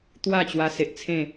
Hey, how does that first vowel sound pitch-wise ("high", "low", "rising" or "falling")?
falling